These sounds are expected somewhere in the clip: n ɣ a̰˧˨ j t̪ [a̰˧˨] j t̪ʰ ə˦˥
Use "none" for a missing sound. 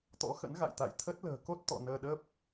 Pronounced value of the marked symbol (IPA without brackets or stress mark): a̰˧˨